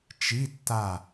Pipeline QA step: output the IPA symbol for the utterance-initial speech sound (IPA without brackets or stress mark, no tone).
t͡ʃ